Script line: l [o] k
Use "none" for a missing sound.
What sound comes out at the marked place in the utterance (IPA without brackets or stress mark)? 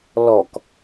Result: ɔ